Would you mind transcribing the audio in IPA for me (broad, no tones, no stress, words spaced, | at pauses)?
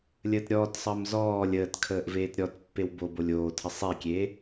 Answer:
lʲəːtɾʲɔːtsˤəːm zɔː lʲəːtkʰəːʔ veːtɾʲɔtpːew bobolʲ oːtʰə sˤekʲeː